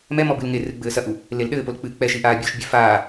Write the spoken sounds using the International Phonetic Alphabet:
mɛ mɔbɨlŋerɨ ɡ͡bɘːsɐʔu | lelɗɘːpol k͡pɨːk͡pɛʃi ʔaːbʲoʃbʲe faː

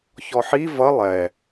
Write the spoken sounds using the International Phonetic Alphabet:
çɔħi vʌ lˠɛ

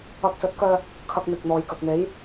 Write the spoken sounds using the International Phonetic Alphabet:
ɐ˧k̚sɵ˨˥t̚kœː˧ | kʰɐ˧k̚n̪ɪ˨k̚n̪ɔː˨j kɐ˨k̚n̪e˨˥j

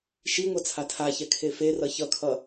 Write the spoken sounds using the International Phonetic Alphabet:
ʃiŋʷʌ t͡sʰatʰaçɛ kʰeferʌ çʌkʰʌ

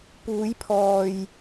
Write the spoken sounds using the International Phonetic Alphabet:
puː˨˧jpʰɔː˨j

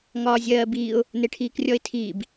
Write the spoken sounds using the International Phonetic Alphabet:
ŋɒːzʲɜːbiːʊ̯ | neʈʰiːkrʲɔɪ̯tʰiːb

